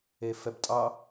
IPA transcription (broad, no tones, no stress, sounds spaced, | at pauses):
e f ɛ b tʼ ɑ